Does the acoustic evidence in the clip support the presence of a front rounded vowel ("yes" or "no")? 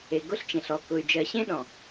yes